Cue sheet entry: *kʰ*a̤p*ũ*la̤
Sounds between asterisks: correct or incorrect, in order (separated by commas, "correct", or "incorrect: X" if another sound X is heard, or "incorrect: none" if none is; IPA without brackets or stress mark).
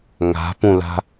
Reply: incorrect: ŋ, correct